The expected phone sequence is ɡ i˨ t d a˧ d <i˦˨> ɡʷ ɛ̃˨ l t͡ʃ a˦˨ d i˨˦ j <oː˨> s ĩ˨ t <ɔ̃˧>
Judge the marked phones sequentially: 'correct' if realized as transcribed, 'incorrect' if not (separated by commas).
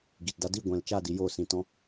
correct, correct, correct